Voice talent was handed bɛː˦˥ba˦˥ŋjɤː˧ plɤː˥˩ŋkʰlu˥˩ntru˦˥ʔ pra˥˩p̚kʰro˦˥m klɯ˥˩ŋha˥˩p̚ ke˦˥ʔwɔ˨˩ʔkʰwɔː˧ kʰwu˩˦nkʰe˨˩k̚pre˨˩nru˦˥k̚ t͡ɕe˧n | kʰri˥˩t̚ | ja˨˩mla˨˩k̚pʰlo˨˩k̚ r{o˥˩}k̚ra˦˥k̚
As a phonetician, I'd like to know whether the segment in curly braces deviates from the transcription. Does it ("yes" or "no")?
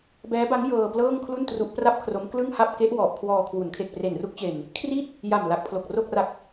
no